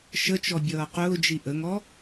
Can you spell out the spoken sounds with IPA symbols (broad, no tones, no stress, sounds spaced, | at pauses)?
ʃ ə t͡ʃ ɔ bʲ ʌː q ʊː d͡ʒ i ʔ ə ŋ ɔ